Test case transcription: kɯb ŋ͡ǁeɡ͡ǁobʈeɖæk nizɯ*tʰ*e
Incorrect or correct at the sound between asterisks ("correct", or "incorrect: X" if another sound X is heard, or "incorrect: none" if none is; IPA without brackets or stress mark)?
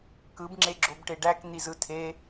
correct